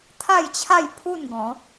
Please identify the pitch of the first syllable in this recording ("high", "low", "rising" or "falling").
falling